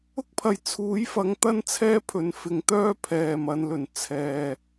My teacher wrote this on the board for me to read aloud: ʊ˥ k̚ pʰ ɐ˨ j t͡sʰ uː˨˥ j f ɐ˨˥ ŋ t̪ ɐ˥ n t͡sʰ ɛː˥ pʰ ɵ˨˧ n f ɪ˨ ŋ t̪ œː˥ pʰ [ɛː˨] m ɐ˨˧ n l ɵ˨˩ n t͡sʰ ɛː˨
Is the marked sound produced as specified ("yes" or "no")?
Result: yes